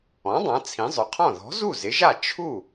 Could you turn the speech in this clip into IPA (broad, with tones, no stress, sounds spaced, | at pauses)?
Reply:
ɔ̃˩˥ dˤ ã˩˥ t͡sʰ ĩ˩˥ zˤ ʊ˩˥ qʰ ɔ̃˥˩ ð ɔ̤˩˥ z u˥˩ z ɪ˩˥ ʒ a˥˩ t͡ʃʰ u˥˩